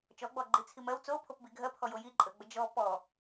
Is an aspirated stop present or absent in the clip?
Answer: present